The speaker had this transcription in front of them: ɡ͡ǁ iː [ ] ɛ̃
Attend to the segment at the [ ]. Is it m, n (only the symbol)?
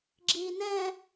n